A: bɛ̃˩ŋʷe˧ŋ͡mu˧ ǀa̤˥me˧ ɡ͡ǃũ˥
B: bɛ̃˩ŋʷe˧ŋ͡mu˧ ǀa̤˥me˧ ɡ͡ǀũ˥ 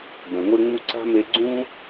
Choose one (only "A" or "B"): B